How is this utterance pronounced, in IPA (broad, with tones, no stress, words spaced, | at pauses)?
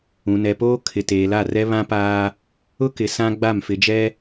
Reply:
ũ˨nɛ˨poː˦ kʰɪ˨teː˨la˦˨rɛ˦ βã˦paː˦ | ʊ˦kɪ˨ sã˦ɡ͡ba˦˨m fɪ˨d͡ʒɛ˦